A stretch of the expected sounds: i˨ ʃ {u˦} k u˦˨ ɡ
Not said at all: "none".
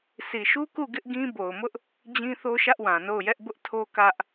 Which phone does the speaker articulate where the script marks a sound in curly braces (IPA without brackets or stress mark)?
u˦